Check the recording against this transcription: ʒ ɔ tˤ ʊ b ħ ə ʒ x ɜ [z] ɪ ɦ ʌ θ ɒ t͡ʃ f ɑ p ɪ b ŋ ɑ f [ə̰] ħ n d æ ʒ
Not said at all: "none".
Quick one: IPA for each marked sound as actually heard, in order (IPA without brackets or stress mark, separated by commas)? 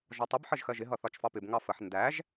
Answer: ʒ, ə